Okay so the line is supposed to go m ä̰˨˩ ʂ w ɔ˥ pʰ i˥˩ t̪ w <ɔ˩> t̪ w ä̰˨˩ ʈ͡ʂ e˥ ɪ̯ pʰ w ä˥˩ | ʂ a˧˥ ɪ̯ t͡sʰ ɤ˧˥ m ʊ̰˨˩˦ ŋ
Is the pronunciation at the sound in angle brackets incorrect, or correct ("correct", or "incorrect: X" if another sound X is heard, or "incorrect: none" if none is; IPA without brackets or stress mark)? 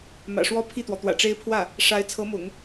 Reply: correct